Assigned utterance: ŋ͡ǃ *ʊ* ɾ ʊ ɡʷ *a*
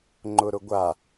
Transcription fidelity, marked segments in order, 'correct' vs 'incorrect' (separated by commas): correct, correct